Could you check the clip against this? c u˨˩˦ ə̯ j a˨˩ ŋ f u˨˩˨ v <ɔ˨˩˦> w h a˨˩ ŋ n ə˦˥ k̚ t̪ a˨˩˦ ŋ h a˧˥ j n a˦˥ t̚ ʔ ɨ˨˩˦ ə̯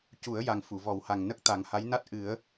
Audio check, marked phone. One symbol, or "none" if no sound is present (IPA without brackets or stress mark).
ɔ˨˩˦